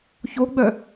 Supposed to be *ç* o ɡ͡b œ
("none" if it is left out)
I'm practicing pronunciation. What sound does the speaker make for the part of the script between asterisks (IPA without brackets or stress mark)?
ç